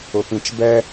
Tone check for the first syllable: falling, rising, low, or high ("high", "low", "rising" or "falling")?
low